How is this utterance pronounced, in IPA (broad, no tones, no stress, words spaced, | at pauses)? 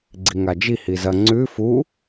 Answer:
ɡ͡ǀiŋad͡ʒi hizɐ ŋ͡ǀʉ fu